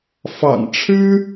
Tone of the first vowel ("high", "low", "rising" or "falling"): low